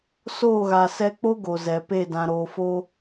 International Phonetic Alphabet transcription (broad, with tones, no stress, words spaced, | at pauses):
soː˦˨ɣa˨sɛ˧k͡po˦ ɡo˨zɛ˨pe˦˨ dã˨ ɾoː˨fo˧